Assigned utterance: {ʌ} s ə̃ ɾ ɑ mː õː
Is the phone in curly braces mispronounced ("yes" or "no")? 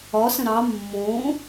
yes